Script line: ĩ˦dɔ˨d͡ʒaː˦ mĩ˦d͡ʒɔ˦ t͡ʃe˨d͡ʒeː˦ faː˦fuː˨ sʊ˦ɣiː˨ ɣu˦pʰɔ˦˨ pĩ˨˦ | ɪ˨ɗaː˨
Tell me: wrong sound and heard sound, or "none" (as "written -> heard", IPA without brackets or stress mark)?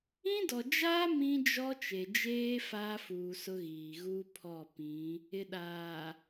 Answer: none